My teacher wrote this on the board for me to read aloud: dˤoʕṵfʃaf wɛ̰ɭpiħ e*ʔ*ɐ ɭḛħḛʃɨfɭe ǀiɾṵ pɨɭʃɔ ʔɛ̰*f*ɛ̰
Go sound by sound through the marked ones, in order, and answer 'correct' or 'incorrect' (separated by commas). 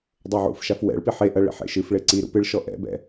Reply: correct, incorrect